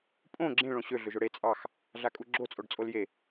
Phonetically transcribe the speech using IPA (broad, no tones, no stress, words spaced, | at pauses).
pʼõ ɡ͡ǁẽ ɭõɕø ɮøʒʊɽe t͡sʼɑx | ɮakʼuɡ͡ǁo t͡sʼoɖt͡sʼolje